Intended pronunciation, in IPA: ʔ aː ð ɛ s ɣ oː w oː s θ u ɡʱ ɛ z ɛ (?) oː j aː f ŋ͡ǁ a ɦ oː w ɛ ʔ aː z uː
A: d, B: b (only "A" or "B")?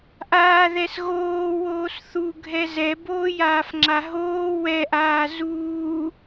B